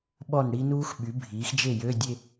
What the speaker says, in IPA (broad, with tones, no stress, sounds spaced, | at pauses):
ɓ ɔ˥˩ n ɽ i˦˥ n uː˦˥ x ɓ y˩˥ bʱ iː˩˥ x d͡ʒ e˥˩ j ø˧˥˧ dʲ e˥˧